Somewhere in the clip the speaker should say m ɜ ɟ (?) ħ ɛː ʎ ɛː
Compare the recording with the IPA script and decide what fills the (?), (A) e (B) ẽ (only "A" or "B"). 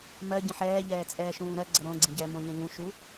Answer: B